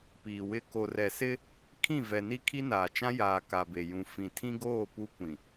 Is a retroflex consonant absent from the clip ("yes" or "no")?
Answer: yes